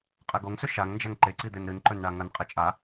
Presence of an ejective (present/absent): present